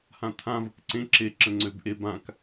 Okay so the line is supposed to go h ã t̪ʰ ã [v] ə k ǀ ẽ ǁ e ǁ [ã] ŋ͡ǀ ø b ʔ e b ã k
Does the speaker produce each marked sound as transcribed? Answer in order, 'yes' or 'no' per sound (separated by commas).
yes, no